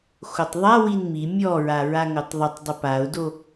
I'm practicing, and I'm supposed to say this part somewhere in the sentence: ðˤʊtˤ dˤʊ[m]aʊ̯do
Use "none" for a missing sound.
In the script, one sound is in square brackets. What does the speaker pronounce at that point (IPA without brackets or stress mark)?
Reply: p